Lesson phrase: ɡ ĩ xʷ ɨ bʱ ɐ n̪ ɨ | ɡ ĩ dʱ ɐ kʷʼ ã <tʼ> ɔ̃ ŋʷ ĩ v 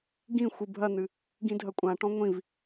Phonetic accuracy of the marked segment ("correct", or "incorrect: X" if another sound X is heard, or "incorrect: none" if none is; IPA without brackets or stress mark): incorrect: ʈ